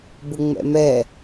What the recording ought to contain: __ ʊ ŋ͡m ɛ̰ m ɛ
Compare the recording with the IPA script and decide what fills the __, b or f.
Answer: b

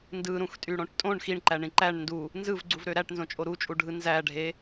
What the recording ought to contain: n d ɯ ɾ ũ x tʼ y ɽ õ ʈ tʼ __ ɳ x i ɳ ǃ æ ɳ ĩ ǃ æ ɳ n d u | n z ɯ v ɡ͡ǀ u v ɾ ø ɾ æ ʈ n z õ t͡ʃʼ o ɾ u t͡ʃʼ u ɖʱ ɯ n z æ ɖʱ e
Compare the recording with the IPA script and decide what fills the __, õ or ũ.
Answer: õ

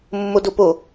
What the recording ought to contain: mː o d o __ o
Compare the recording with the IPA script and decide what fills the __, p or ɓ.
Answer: p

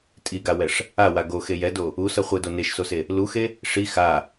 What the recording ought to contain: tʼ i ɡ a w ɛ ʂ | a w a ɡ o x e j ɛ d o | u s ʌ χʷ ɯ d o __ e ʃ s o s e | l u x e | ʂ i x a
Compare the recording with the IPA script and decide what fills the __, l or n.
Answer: n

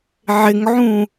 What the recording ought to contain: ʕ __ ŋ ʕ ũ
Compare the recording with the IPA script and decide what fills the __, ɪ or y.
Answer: ɪ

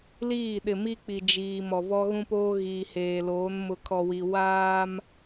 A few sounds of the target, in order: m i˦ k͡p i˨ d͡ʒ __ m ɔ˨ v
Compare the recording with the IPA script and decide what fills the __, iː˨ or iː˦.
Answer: iː˨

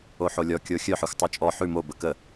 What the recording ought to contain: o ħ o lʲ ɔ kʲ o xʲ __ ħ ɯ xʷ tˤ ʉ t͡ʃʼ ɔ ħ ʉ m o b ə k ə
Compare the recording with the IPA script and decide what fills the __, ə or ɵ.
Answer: ɵ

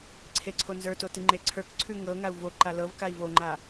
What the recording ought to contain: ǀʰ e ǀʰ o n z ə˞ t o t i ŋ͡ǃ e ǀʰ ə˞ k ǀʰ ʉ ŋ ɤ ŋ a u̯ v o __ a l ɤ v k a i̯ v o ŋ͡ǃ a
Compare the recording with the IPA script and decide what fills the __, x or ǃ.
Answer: ǃ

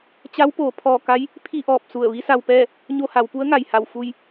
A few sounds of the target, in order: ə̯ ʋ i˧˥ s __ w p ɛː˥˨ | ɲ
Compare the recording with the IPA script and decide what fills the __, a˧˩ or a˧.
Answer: a˧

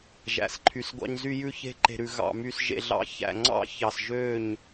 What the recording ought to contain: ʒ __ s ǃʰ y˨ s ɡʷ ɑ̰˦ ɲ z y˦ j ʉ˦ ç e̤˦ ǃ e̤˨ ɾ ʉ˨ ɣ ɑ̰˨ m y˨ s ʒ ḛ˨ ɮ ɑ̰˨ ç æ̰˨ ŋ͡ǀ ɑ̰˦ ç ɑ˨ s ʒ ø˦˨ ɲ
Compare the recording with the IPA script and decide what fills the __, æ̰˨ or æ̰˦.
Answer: æ̰˨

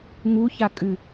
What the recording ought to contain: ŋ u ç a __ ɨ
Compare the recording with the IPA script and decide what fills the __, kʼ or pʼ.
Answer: kʼ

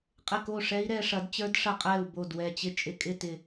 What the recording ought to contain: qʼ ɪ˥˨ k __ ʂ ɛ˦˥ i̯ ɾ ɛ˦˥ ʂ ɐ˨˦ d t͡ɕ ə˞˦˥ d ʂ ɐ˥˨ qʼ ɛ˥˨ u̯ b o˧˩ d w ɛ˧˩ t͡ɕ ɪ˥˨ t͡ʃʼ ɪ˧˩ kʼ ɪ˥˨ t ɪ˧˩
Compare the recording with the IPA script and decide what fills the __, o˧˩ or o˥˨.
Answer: o˥˨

